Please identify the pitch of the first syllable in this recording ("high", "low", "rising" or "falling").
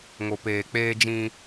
low